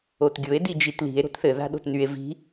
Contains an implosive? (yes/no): yes